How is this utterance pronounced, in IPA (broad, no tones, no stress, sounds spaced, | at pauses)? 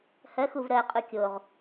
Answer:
h ɜ x u v ɾ ɜ qʼ u kʲ o ʁ